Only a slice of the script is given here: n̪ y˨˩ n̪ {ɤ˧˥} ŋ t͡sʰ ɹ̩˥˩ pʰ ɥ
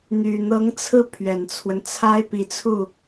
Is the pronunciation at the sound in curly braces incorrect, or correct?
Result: correct